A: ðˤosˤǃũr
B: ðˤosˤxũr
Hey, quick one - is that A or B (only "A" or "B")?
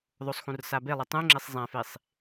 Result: B